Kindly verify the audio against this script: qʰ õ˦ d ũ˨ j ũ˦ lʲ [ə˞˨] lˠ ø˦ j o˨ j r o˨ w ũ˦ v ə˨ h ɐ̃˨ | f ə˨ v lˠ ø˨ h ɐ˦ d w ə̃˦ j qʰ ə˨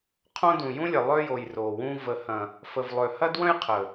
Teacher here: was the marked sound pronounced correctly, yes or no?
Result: no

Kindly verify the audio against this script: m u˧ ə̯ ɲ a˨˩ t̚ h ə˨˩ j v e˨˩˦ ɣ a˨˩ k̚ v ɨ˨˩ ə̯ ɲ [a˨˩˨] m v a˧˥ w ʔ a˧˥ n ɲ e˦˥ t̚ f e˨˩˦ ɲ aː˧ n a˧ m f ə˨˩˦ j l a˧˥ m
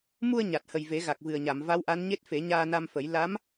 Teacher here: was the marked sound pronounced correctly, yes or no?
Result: yes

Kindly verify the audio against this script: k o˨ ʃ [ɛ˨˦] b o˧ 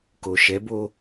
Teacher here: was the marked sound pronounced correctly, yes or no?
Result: yes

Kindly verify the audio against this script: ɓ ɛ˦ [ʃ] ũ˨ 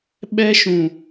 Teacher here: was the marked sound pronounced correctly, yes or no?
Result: yes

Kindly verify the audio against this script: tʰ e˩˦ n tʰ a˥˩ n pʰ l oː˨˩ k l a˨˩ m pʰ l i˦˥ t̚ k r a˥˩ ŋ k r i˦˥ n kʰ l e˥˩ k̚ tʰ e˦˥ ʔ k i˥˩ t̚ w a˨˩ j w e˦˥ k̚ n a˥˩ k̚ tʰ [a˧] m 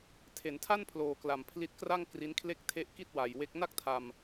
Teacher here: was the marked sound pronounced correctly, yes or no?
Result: yes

